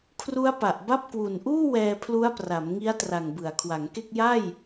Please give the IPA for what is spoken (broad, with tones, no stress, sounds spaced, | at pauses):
kʰ r u˦˥ a̯ p a˨˩ ʔ b a˥˩ p̚ k w u˨˩ n ʔ uː˥˩ w ɛː˧ pʰ l u˦˥ a̯ p r a˩˦ m ŋ i˦˥ a̯ t r a˨˩ ŋ b ɯ˩˦ a̯ kʰ w a˩˦ ŋ k e˥˩ k̚ j a˥˩ j